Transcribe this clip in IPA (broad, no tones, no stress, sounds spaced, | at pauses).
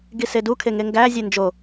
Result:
ɡ i s e d u kʰ e ŋ e ŋ ɡ æ zʲ e n d͡ʒ o